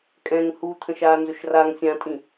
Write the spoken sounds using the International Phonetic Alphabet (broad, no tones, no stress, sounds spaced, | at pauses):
kʼ ɛ̃ ŋ h u t̪ʰ ə̃ ʃ aː n z ɵ ʃ r a ŋ sʲ ã tʼ ĩ